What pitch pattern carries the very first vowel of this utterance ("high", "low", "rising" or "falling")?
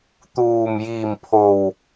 low